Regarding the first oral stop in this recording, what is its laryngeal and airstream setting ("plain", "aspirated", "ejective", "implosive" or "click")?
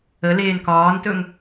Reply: plain